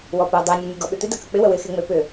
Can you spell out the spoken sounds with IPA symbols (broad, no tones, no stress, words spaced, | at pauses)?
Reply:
wɔpo dˤenʲɔ nʲoɡɔɓʏt̪ɪ dɐkək͡pɪ wəwɪxeŋ͡me pʏ